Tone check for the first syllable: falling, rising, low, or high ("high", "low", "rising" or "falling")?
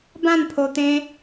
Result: falling